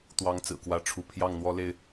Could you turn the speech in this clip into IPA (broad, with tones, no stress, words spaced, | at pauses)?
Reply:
t̪wɑ˦ŋt͡sɹ̩˨˩kwä˥˨ʈ͡ʂʰu˥˨ pʰjɑ˥˨ŋn̪wɔ˦le˥˨ɪ̯